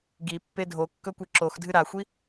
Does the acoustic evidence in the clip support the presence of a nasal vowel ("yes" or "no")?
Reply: no